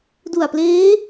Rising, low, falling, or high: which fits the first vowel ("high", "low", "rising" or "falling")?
low